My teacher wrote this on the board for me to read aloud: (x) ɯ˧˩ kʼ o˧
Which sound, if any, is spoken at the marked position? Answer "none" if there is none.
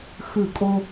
x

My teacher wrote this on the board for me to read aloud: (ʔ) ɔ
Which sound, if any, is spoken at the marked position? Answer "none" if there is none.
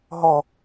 ɦ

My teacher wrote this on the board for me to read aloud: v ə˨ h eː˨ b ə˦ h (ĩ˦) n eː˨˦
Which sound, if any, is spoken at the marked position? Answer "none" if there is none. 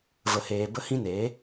ĩ˦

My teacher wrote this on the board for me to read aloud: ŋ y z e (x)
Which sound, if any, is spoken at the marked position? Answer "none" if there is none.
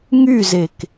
k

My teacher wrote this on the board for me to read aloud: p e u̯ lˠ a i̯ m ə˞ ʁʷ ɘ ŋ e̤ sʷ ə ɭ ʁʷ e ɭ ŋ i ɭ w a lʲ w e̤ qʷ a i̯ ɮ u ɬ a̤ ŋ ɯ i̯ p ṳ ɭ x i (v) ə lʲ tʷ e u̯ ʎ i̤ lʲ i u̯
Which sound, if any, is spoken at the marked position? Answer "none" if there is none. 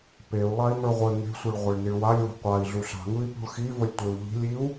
v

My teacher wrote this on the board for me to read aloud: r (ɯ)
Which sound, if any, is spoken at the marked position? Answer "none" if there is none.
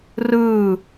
ɯ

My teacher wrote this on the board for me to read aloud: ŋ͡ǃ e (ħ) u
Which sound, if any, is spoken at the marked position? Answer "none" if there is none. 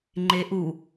ʔ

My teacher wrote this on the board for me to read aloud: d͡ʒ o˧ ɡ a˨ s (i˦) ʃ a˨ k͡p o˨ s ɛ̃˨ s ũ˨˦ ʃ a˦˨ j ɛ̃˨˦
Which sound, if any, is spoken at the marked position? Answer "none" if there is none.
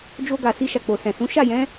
i˧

